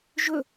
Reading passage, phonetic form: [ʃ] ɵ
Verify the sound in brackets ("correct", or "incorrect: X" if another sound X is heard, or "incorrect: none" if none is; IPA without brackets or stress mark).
incorrect: ʒ